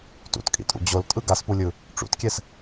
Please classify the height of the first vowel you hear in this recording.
high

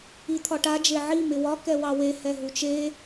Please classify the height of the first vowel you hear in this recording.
high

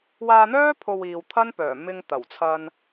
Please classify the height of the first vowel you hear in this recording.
low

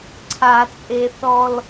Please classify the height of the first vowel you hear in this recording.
low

